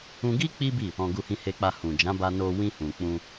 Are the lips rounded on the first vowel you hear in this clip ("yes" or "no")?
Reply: yes